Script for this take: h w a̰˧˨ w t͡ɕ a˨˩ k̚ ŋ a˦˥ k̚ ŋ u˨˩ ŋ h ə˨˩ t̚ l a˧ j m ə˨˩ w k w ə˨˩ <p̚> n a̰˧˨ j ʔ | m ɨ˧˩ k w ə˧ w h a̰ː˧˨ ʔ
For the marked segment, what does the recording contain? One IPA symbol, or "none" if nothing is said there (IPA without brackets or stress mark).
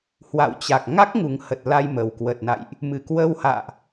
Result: t̚